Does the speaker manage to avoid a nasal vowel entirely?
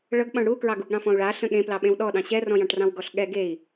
no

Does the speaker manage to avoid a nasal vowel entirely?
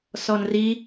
yes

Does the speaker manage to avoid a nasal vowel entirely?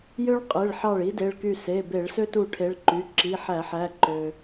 yes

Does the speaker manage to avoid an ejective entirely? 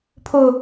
yes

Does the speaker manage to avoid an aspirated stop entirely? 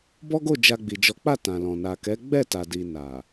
yes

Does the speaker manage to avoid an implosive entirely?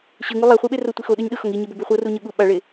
no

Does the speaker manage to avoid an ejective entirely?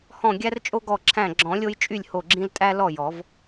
no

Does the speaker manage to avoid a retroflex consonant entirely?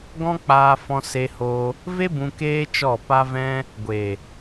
yes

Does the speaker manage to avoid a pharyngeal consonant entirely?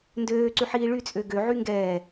no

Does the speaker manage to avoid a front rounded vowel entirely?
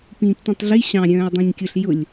no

